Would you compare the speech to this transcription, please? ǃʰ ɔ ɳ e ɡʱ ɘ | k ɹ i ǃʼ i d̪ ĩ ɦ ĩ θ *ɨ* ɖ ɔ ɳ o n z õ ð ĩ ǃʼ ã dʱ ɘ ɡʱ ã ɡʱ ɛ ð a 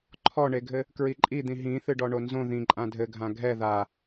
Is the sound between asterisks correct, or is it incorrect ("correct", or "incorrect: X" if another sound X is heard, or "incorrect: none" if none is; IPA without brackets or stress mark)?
correct